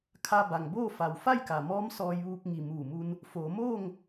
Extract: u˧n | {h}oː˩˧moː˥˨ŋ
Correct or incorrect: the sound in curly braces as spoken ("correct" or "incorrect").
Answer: incorrect